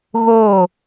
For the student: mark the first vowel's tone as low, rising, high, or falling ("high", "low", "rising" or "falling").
falling